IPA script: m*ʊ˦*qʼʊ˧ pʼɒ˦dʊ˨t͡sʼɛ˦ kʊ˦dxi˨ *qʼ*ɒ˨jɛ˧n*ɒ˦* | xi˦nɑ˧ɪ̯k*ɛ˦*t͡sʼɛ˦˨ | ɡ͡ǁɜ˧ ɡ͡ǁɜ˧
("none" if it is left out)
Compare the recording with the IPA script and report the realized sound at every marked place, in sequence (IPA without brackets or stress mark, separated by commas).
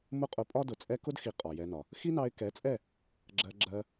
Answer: ʊ˦, qʼ, ɒ˨, ɛ˨˦